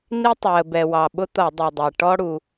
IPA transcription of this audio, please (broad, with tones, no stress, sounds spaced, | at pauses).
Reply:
n i˥ tˤ w ə˩ b ɛ˩ w ɑ˩ ɓ ʊ˥ t̪ ʌ˧˩˧ dˤ i˩ dˤ ɛ˩ ʈ ɔ˥ ɽ u˩